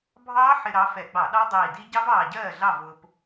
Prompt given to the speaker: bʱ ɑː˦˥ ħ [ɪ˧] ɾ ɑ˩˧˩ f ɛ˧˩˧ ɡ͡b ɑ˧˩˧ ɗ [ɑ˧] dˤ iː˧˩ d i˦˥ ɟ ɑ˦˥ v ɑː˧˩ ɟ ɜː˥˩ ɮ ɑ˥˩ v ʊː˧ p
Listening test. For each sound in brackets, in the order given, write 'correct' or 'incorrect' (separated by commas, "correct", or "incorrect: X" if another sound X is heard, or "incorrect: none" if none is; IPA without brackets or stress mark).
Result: correct, incorrect: ɑ˦˥